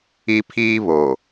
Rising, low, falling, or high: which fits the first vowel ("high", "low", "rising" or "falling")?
high